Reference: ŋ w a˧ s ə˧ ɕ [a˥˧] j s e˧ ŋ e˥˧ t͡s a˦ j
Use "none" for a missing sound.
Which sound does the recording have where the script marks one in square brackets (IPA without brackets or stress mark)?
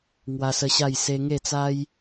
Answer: a˥˧